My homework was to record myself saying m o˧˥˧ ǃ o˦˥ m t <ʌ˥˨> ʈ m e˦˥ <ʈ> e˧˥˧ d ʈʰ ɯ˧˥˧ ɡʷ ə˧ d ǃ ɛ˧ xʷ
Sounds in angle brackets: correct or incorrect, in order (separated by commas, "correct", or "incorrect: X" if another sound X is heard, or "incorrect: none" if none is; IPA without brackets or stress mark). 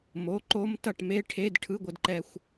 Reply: correct, incorrect: ʈʰ